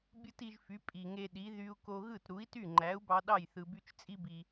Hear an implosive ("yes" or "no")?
yes